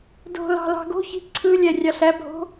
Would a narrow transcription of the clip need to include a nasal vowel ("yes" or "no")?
no